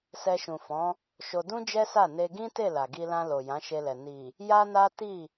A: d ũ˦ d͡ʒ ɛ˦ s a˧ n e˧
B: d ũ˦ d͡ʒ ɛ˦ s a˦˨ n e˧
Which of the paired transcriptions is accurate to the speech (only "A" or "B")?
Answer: B